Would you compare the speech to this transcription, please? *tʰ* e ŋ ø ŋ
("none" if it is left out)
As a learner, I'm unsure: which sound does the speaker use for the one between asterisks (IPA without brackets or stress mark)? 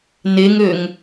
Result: n